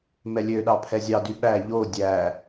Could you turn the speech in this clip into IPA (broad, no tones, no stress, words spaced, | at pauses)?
mɛlʲøɗɑ pʰɛzʲɑdy ɓæ ʎo dʲæ